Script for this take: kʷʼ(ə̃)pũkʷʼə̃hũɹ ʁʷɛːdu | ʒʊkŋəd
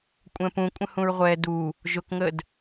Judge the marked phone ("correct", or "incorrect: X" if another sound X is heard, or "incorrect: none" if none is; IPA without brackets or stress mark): incorrect: ɛ̃